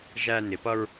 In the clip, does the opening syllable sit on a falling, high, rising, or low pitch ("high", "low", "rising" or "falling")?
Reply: high